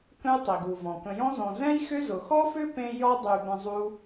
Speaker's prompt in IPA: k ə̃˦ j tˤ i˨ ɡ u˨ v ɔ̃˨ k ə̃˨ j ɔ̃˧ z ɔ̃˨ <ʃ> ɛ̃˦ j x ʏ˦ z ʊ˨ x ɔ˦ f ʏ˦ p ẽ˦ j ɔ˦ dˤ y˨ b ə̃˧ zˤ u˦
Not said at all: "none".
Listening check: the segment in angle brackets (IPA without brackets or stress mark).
z